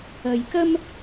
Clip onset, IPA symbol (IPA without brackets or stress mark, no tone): ɐ